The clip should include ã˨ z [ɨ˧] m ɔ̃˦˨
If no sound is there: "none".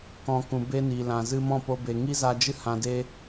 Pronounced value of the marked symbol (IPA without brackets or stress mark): ɨ˧